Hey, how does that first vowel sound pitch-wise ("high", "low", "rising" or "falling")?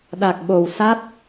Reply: low